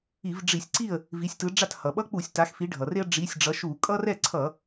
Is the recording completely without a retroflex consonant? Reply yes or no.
no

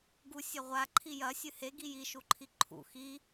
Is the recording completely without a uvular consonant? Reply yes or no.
no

